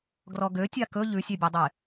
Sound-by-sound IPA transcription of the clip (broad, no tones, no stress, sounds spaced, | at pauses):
ɡ r ɔ ɡ ø tʲ a k ɵ ʎ ʉ sʲ ɛ bʲ ɛ dˤ e